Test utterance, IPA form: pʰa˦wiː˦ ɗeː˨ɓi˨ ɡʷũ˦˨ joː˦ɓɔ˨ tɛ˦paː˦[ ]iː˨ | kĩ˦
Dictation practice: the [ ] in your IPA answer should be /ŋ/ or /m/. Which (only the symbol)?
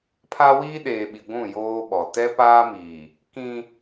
m